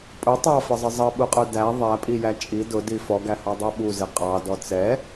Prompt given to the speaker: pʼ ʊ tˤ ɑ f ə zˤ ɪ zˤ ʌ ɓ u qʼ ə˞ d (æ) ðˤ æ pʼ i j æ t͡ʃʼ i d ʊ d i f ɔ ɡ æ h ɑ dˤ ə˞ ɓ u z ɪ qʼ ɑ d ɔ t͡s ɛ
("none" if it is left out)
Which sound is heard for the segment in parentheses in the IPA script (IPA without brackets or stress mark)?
æ